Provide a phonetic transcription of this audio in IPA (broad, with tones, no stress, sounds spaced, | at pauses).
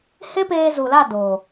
h e˦ p eː˧ z u˨ l a˦˨ d oː˨